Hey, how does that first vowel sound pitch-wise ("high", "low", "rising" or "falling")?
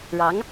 rising